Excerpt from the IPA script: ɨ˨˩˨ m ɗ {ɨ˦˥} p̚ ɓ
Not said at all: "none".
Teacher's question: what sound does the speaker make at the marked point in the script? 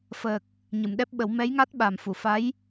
ɛ˦˥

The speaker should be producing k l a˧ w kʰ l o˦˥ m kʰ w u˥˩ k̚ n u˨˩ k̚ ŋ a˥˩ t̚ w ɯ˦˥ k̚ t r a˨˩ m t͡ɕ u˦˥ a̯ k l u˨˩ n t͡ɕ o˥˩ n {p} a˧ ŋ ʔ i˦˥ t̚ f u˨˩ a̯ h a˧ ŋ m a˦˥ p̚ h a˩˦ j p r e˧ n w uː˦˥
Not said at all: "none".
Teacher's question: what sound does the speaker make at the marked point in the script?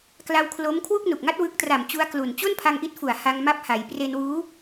pʰ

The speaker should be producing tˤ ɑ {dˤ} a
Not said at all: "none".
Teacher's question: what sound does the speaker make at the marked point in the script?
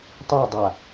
dˤ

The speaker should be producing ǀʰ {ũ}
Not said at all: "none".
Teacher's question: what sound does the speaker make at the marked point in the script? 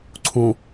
ũ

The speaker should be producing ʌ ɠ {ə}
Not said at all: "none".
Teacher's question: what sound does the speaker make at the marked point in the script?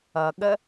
ə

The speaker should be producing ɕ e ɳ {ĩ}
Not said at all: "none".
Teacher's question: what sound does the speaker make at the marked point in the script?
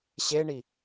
i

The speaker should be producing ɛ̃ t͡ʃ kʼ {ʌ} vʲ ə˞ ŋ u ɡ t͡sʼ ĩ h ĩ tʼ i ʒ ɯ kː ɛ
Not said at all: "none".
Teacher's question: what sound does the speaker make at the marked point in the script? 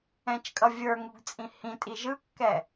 ʌ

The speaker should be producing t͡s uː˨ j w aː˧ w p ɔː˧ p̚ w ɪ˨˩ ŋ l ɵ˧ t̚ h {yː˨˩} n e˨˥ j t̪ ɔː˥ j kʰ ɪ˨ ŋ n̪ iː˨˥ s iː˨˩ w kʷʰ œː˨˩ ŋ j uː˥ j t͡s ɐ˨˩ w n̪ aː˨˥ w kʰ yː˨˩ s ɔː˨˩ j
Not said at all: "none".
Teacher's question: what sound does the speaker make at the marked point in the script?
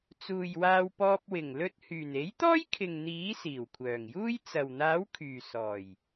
yː˨˩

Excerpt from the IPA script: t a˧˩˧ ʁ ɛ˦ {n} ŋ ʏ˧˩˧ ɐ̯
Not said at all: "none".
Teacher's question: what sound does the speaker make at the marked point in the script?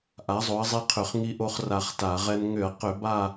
n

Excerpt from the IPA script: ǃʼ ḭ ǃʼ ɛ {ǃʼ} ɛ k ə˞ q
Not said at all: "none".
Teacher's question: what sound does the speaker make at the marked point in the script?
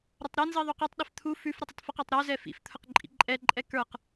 ǃʼ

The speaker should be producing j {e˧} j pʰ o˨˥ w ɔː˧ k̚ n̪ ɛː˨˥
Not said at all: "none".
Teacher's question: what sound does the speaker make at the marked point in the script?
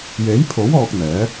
e˨˥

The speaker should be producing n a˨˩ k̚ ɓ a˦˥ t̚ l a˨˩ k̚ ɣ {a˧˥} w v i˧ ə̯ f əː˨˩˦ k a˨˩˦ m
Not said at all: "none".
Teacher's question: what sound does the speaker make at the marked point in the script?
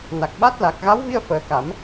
a˧˥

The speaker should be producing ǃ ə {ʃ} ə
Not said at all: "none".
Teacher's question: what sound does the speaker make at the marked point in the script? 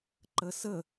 s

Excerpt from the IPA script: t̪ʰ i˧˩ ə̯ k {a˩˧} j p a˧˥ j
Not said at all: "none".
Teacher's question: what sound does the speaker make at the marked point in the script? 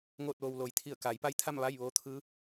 a˩˧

